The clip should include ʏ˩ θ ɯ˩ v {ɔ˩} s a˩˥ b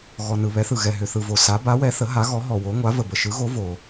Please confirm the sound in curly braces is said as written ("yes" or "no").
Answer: no